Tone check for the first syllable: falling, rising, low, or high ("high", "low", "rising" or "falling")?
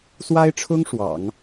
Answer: high